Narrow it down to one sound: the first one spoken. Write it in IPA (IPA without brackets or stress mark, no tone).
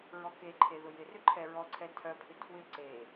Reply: ɹ